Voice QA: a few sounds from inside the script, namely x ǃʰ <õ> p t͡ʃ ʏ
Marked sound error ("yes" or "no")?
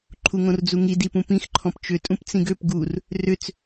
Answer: yes